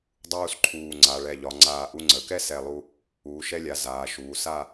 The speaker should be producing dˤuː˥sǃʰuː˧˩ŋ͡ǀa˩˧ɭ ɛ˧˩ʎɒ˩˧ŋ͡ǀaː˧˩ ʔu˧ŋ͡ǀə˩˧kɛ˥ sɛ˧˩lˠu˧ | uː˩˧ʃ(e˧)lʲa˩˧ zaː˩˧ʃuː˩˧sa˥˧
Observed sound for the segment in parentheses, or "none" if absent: ɛ˧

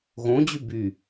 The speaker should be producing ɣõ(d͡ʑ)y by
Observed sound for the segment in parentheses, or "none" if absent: d͡ʑ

